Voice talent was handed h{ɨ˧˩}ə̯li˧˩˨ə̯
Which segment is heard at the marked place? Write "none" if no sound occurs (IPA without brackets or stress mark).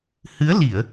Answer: ɨ˨˦